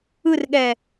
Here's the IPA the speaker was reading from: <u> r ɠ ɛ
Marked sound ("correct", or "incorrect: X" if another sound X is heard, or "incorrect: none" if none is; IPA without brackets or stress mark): incorrect: ɯ